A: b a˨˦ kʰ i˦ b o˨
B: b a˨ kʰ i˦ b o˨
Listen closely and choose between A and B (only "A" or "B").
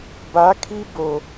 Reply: A